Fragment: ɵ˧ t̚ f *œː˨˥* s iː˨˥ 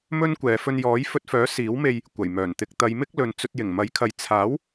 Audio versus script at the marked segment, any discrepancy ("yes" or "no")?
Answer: no